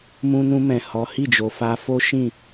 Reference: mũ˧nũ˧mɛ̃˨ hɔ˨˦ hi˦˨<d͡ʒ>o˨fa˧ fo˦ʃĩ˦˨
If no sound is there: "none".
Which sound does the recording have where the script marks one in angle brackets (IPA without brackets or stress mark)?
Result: d͡ʒ